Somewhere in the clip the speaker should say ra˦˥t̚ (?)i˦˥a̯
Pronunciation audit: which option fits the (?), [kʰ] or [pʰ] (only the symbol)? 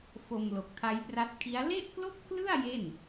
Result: kʰ